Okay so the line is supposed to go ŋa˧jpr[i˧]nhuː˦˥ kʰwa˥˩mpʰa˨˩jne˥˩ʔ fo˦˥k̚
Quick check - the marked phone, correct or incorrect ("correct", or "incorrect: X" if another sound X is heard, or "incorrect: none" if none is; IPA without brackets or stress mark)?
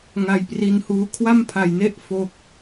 correct